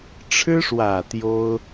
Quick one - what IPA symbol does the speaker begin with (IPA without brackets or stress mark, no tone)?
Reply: ʈ͡ʂʰ